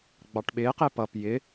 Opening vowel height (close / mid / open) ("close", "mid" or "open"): open